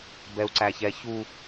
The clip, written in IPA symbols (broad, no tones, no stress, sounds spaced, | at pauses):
b ɛ u̯ ǀ æ ç ɛ ç u